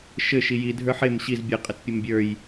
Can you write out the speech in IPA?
ʃɘ ʃiji dʱə˞ħem ɕiz bʲə qʼətpʲəmbʲə˞j

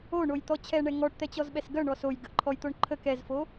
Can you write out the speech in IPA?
oɳojt̪ɔ t͡ɕʰɛɳɛ ŋɔʈt̪ɛt͡ɕɔzɓɛs ɡœɳɔ sojɡəʔǃʰɔjt̪oɳ ǃʰək ɛzfo

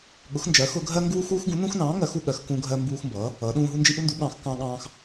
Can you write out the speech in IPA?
ɠʊ˨˥xnd͡ʒɜ˨˥xʊ˦ ɡʱɜ˦ŋɡuː˦x uː˦xɡũ˨˥nũ˦xnɑ̃ː˨˥ ŋɜ˨˥x u˦ɠɜ˨˥xkũ˦ ɡʱɜ˦mbuː˦xmbʌː˨˥ | ʌː˨˥ɗũː˦ ɦu˦nd͡ʒi˦ʔu˦ndu˨˥ ɠɑ̃˨˥xkɑ̃˦ ɠɑ̃ː˦x

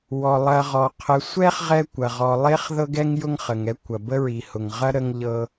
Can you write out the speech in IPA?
wɔ˩lˠɐ˨ʁɔ˩ qʰə˨sʷɛ˥χ ʁɛ˥kʷɐ˩ʁɔ˨ lˠe˥χðɤ˥ɡɛ˥ŋ jʊ˦ŋχə˩ŋɛ˦ kʷɐ˩bə˥ ɹi˨hʊ˨ŋ ʁɐ˥ ɾə˦ŋ ʎɤ˦

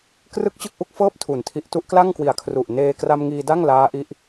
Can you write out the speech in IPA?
krɯ˥˩k̚t͡ɕɯ˥˩k̚ʔu˥˩k̚fɤː˥˩p̚ tʰu˨˩ntʰi˦˥ʔ tu˦˥ʔkla˥˩ŋkwi˨˩a̯kʰru˨˩ʔ neː˧kra˧mŋiː˧ da˥˩ŋlaː˦˥ʔi˦˥ʔ

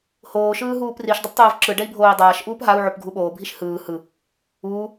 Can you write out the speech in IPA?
hoːʃɯː ɦuːpriʃ dˤuptˤoːvǁɯ ɖɛi̯bʱoːi̯dˤaːʃʔuːp ɦau̯ʕop ɡʱuɓoːbʱiʃ hɯː hɯ | uː

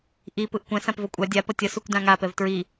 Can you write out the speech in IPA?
ʔi pɯʔkʷɛ̃ sãpvʌkʷʼa dʲa pʌtʲʌ sukʷdãŋa pɛvtɹi

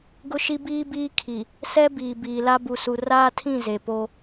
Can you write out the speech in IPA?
ɡʊ˦ʃi˦biː˦biː˦ kʰi˨ | sɛ˦ biː˨ biː˨la˦ bu˨su˨ raː˦tʰĩ˦˨ ze˨po˦

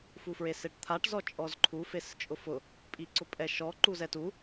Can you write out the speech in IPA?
fufɹeseʈt̪ʰaʈ zɔt͡ʃʼɔzǃʰu fest͡ʃʼʊfʊ | pʼiǀʊpʼɛʃɔ ǃuzɛtu

